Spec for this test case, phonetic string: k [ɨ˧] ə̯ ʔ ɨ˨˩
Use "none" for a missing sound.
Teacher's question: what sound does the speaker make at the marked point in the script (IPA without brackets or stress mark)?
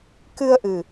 ɨ˧